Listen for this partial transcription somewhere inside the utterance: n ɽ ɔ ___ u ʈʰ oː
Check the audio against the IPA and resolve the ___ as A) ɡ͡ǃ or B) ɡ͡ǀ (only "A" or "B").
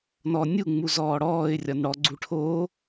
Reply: B